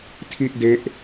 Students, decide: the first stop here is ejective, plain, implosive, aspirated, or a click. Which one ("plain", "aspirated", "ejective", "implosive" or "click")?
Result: aspirated